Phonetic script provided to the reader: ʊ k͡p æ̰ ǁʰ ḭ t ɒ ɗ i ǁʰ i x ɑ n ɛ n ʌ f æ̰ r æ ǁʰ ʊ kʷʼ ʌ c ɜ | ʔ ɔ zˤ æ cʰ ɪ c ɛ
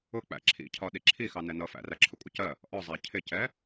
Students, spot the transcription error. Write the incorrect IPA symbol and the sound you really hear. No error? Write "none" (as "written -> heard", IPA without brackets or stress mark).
t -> cʰ